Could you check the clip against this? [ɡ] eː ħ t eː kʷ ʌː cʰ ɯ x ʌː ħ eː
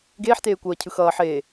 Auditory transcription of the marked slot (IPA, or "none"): ɡ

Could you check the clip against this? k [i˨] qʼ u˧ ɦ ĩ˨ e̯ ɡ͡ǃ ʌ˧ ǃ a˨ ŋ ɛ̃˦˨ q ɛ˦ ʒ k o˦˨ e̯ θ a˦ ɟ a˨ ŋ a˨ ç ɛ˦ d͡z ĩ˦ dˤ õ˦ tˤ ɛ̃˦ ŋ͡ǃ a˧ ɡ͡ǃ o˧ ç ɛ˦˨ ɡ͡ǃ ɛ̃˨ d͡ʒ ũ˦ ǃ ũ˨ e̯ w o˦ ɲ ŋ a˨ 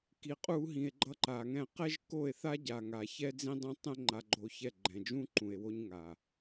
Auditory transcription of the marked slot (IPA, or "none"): i˨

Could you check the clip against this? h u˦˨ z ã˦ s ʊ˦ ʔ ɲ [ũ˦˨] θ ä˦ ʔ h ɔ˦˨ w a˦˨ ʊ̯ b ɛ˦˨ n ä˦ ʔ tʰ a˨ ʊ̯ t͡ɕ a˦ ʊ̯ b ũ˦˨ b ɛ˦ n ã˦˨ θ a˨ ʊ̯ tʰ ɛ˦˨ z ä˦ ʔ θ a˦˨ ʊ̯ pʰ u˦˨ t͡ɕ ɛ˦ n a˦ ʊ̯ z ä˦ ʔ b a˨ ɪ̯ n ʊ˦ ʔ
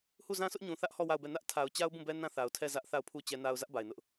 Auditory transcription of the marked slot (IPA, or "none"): ũ˨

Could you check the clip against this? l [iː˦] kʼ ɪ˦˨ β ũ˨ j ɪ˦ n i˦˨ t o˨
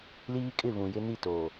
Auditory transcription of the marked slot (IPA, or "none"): iː˦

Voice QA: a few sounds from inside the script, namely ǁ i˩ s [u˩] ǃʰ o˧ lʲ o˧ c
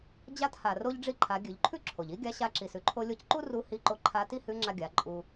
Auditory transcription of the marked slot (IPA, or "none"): ʉ˩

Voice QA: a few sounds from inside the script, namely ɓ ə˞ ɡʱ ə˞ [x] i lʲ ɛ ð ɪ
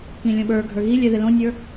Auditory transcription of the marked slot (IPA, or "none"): ɣ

